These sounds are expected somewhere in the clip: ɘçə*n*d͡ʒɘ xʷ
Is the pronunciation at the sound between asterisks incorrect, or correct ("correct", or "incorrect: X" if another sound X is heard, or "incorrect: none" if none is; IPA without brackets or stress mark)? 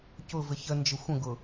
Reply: correct